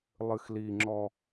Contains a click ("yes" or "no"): yes